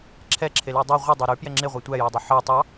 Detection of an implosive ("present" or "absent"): absent